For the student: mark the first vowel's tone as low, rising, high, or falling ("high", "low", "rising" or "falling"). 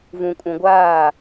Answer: low